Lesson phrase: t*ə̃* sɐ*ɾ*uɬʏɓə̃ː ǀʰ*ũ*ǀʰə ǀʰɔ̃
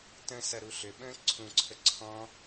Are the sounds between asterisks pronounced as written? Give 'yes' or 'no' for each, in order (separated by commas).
yes, yes, yes